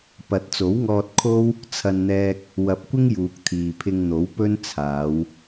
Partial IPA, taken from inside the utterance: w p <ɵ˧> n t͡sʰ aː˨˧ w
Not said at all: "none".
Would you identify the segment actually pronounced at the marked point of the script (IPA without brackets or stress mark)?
ɵ˥